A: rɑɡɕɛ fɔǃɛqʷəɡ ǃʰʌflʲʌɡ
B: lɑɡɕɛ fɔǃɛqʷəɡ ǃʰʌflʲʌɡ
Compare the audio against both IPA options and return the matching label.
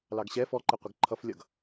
B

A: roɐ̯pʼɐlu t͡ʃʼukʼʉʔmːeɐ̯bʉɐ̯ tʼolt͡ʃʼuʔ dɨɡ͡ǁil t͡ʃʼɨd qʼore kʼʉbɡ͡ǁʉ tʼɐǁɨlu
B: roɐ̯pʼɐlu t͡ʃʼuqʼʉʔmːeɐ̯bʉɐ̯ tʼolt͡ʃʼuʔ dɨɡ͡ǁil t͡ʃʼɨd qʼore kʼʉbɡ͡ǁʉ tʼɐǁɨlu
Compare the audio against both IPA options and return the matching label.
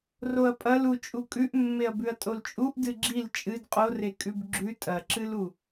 A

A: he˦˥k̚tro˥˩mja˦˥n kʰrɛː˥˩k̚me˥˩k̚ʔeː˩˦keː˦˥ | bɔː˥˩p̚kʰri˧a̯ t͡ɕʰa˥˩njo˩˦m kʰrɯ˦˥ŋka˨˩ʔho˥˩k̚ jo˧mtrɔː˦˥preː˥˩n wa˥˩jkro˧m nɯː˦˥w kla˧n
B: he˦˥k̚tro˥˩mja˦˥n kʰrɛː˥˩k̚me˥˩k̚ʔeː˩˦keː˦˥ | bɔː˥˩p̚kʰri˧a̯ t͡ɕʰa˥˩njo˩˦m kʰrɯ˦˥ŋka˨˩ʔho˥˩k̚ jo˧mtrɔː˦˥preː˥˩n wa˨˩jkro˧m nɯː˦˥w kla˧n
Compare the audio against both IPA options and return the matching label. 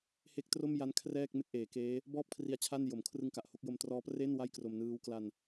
A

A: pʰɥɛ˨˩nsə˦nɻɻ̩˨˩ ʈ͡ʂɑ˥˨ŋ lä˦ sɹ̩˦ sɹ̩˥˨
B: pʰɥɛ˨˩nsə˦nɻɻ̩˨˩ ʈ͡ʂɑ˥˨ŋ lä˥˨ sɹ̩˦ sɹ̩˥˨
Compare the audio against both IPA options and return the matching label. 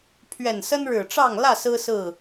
B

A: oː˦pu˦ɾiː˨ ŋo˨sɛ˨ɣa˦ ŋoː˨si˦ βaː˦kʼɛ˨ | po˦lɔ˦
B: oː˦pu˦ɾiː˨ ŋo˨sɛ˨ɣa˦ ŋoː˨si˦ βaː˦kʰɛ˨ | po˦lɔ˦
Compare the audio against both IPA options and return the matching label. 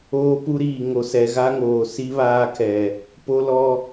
B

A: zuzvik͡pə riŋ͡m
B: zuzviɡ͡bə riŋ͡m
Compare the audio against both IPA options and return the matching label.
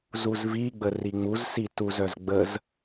B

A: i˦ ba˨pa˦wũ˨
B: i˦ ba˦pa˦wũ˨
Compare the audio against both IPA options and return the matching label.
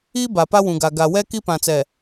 A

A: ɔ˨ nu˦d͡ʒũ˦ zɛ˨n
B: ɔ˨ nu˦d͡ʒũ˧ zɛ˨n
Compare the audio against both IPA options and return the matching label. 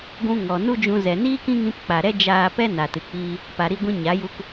B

